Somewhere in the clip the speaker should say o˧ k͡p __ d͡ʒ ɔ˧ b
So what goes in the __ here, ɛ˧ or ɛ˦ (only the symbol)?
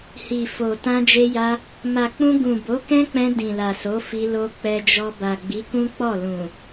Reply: ɛ˧